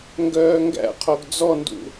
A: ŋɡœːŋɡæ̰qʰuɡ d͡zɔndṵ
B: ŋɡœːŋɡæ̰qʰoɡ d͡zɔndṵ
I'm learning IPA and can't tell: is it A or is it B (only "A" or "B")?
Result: B